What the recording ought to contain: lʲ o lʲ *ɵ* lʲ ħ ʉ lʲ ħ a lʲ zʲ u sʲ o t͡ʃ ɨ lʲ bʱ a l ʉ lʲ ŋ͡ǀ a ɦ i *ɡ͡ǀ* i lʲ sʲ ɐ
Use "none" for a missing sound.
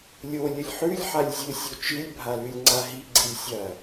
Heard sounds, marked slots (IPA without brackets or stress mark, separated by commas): ɵ, ɡ͡ǀ